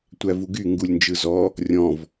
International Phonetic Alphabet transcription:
tʷ æ v u ɡ y ŋ ɡ u lʲ n d͡ʒ ɯ z ɔ | rʲ ɔ̃ v

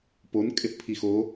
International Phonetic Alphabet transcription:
p o n kʼ ɪ θ pʰ i x o

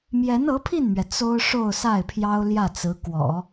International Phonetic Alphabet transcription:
m j ɛ˧˥ n ɤ˧˥ pʰ i˥˩ n m ɥ ɛ˩ t͡s o˥ ʊ̯ ʂ o˥˧ ʊ̯ s a˥˩ ɪ̯ pʰ j ɑ˥ ʊ̯ l j ä˥˩ t͡s ɹ̩˧˥ k w ɔ̰˨˩˦

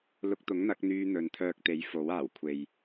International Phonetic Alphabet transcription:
l ʊ˧ k̚ t̪ ʊ˨˥ ŋ n̪ ɐ˨˥ k̚ n̪ yː˧ n̪ ɵ˨˧ n t̪ʰ œː˧ k̚ t̪ e˨˥ j f o˨˥ w aː˨˩ w kʷʰ e˨ j

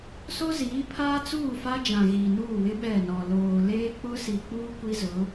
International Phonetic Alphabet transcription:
s o˦ z iː˨˦ pʰ aː˦ t͡s uː˦˨ f a˦ d͡ʒ ã˨ ɣ iː˨ n uː˦˨ w ɪ˦ ɓ ɛ˦˨ n ɔ˨ l oː˨ l eː˦ k͡p ʊ˦ s i˨ k͡p uː˦ kʷ i˦ z ʊ˨˦

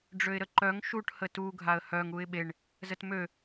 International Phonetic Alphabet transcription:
ɖ͡ʐ ø ɪ̯ ɾ ə ǃ œ ŋ ʃ u ʈ h ə t u ɡʱ a ə̯ h œ ŋ u ɪ̯ ɓ e ɳ | z ə t m ø

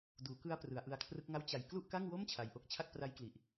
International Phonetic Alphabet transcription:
d uː˩˦ k ɯ˦˥ a̯ p r ɯ˩˦ a̯ ʔ ɯ˧ a̯ kʰ r ɯ˦˥ k̚ ŋ a˥˩ w t͡ɕ a˨˩ j k l u˥˩ ʔ k a˥˩ ŋ w o˥˩ m t͡ɕʰ a˧ j ʔ o˥˩ k̚ t͡ɕʰ a˥˩ k̚ p r a˦˥ j k l i˨˩ ʔ

